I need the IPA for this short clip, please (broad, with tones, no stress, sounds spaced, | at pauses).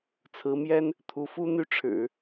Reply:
t͡sʰ ɹ̩˧˥ m j ɛ˥ n | t̪ʰ u˧˥ f u˥ n̪ y˥˩ ʈ͡ʂʰ ɻ̩˨˩˦